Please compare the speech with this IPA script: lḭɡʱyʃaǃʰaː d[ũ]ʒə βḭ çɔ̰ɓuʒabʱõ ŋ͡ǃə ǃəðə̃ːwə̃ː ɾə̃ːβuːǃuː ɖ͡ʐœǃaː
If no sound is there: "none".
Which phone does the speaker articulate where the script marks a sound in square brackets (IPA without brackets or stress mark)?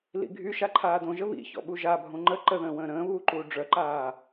õ